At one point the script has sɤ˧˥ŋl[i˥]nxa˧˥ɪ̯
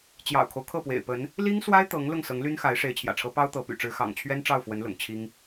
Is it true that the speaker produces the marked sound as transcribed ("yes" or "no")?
no